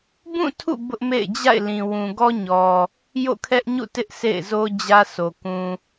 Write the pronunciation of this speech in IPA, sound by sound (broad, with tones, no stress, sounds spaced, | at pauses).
b ũ˦˨ tʰ ṵ˦˨ b ʊ˦ ʔ m ḛ˦˨ ɪ̯ d͡ʑ a̰˦˨ ɪ̯ l ĩ˨ w ũ˨ ɡ ɔ˦ ɲ ɔ˨ | j o̰˦˨ kʰ ɛ˦ ʔ ɲ ṵ˦˨ t ɪ˦ ʔ sʰ ḛ˦˨ ɪ̯ z o˦ d͡ʑ ä˦ sʰ o˨ k ũ˨